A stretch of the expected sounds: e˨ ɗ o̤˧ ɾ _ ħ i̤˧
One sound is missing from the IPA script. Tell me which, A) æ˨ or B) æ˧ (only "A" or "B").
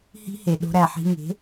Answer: A